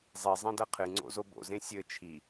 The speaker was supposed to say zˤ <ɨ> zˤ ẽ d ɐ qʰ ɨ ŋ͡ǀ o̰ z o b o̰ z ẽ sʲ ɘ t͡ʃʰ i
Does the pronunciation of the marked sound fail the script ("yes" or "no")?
yes